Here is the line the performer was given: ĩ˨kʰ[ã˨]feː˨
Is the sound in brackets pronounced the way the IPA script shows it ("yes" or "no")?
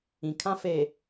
no